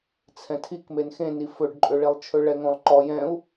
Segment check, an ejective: present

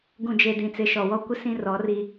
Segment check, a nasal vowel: present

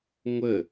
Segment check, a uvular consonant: absent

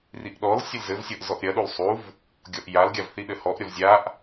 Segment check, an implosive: present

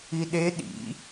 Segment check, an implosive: present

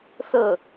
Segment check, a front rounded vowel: absent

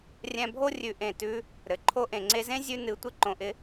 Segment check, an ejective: absent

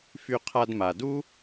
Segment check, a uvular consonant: present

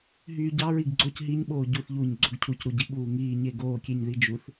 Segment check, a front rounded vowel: present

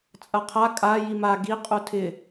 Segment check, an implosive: absent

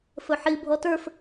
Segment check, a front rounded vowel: absent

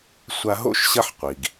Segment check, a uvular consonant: present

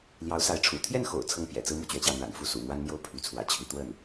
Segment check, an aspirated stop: present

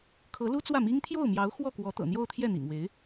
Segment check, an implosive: absent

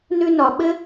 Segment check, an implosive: present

